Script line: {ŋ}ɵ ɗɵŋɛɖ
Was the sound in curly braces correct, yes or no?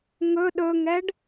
yes